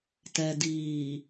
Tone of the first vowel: low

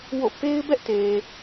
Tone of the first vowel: falling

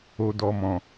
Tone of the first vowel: low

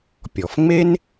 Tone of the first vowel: low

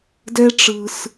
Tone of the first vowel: high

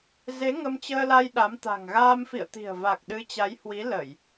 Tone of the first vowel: rising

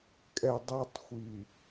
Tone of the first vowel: low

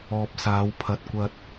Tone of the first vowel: low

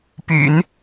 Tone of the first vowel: low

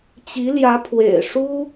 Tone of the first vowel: rising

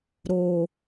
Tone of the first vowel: low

